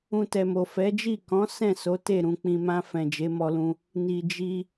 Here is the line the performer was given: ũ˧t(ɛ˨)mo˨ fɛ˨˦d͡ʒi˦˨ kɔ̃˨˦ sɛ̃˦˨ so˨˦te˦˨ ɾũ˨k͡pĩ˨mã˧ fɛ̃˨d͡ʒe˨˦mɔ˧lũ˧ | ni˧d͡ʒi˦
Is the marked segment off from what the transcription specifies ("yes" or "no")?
no